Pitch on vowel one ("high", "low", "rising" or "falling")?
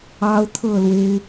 high